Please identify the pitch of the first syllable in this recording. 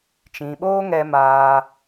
low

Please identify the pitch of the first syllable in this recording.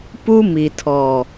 high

